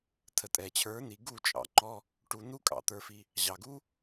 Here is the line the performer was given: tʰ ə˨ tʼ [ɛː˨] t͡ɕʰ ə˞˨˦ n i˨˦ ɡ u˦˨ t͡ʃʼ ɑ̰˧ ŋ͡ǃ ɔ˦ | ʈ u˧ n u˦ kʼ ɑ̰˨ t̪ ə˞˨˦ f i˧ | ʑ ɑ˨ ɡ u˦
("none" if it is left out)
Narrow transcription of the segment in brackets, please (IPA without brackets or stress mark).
ɛ˨